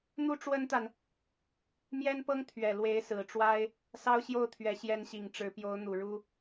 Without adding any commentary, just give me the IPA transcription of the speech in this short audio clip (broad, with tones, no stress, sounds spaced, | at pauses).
n̪ u˥ ʈ͡ʂ w ə˥ n t̪ a˨ n | m j ɛ˥ n p ɤ˥ ŋ t̪ʰ ɥ ɛ˨˩ l w e˧˥ ɪ̯ s ɹ̩˨˩ ʈ͡ʂ w a˥ ɪ̯ | s ɑ˥ ʊ̯ ɕ j o˥˩ ʊ̯ t̪ʰ ɥ ɛ˨˩ ɕ j ɛ˧˥ n ɕ i˨˩ ŋ ʈ͡ʂ ɻ̩˧˥ p j o˧˥ ʊ̯ n̪ u˨˩ ɻ u˥